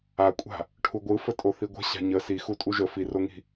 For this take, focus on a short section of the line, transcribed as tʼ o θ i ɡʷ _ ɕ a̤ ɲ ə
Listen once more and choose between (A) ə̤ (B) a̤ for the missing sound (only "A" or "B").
A